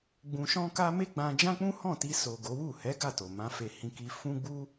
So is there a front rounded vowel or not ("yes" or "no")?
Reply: no